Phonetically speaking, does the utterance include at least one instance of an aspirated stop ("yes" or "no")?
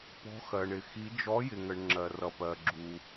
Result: no